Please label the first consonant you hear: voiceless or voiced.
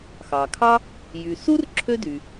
voiceless